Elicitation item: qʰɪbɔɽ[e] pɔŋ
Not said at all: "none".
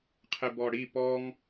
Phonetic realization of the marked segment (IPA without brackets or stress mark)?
i